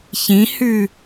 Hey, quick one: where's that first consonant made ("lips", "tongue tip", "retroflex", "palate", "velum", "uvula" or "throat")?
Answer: palate